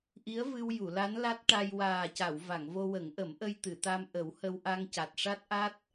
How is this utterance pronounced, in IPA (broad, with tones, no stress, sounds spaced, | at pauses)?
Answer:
ʔ i˧˥ ə̯ v ɨ˧ w j u˨˩˨ l a˧˥ n l a˦˥ t̚ ʈ a˧ j w aː˨˩ c a˨˩˨ w v a˨˩˨ ŋ v o˧ w ə˨˩˦ ŋ ʔ ə˨˩˦ m ʔ ə˧ j t̪ ɨ˨˩˨ t̪ a˧ m ʔ ə˨˩˦ w h ə˧ w ʔ a˧ ŋ c a˨˩ t̚ ʂ a˦˥ t̚ ʔ a˦˥ t̚